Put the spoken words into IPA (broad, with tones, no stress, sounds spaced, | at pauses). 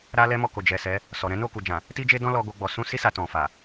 ɾ a˦ l ɛ˦ m ɔ˦˨ k o˨ d͡ʒ ɛ˨ s ɛ˨˦ | s ɔ˨ ɾ ɛ̃˨˦ n o˦˨ k u˨ d͡ʒ ã˨ | t i˦ d͡ʒ e˦ d ɔ̃˦ l ɔ˧ ɡ o˧ ɡ͡b ɔ˨ s ũ˧ s i˦ s a˧ t ɔ̃˨ f a˨